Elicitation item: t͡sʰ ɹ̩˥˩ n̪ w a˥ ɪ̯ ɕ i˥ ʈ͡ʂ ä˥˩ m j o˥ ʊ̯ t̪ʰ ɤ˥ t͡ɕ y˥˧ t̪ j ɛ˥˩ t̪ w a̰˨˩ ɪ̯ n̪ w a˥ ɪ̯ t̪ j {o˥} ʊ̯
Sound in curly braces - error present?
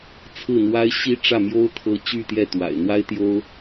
no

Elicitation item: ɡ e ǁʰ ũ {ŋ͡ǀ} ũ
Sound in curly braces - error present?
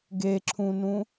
yes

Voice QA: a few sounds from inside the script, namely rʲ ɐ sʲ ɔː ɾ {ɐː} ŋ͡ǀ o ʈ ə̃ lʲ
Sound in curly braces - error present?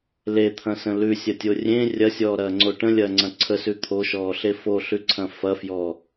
no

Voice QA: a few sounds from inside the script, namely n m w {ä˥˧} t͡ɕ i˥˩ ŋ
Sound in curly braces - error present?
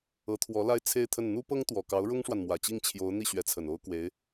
yes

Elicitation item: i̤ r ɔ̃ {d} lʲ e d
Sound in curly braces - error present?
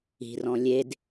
yes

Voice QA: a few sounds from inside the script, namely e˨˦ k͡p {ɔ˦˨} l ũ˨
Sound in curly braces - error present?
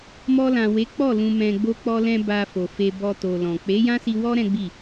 no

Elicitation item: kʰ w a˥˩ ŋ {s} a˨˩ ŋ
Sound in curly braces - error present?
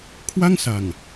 no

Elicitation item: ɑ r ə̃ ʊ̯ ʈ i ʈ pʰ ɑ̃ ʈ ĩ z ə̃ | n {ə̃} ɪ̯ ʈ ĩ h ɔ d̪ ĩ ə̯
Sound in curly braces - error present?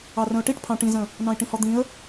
yes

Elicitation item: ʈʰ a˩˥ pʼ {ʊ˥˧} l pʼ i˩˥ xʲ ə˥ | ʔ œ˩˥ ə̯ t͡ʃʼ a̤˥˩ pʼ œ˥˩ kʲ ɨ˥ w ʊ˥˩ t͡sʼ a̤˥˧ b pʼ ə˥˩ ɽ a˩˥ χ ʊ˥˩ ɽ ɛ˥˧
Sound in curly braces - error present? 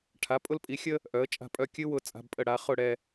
no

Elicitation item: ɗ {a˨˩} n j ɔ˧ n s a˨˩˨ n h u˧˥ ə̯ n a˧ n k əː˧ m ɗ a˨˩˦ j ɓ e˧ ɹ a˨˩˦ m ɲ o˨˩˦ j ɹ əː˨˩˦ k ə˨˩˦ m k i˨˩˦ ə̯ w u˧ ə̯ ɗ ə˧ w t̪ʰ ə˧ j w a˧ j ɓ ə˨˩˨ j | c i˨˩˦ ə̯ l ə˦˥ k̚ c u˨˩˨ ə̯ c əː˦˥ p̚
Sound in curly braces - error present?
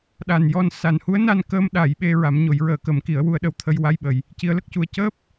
no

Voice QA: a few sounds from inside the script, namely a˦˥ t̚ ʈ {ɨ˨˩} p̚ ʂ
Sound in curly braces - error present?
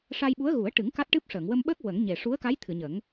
yes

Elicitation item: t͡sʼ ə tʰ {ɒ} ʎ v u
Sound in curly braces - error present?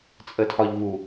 no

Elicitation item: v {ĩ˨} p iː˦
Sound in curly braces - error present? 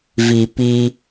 yes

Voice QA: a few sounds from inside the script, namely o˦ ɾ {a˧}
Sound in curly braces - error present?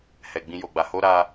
no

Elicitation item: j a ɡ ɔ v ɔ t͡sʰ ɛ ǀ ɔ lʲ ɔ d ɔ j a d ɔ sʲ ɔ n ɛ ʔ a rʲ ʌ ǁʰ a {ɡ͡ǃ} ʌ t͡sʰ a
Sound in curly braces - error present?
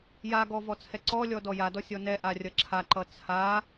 yes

